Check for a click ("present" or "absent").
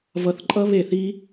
present